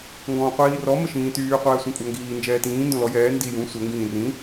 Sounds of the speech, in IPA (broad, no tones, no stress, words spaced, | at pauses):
ŋɡɔ̃ːqʷiːrɔ məʃĩːtyː qʷɛːsʷĩkʷʼaŋɡiː nd͡ʒɛːtĩː ndõlɔ jɛː ndi jũ sʷɛ ŋɡĩːrĩ